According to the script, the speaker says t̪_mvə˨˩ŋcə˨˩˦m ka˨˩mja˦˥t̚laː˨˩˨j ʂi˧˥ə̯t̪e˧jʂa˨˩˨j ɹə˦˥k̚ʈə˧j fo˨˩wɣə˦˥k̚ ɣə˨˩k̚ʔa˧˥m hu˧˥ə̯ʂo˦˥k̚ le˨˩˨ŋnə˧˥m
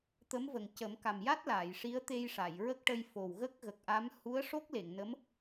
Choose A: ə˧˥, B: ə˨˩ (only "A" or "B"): A